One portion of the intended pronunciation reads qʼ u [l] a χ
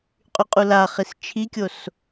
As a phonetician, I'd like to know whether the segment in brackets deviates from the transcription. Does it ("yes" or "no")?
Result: no